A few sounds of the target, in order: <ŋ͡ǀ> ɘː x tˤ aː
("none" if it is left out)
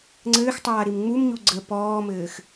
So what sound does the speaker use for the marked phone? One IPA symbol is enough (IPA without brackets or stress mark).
ŋ͡ǀ